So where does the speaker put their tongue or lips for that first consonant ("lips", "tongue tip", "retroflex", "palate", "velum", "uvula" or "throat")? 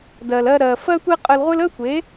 tongue tip